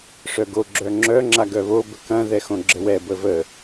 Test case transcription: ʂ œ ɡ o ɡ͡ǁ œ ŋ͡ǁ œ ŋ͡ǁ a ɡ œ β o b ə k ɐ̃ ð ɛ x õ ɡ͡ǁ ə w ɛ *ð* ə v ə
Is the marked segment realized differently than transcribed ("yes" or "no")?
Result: yes